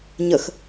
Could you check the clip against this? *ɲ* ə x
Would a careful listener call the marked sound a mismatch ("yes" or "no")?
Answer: no